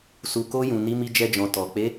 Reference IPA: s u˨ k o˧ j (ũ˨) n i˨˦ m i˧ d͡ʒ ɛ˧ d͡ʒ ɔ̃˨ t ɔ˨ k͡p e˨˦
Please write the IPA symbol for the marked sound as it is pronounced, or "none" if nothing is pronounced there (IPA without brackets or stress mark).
ũ˨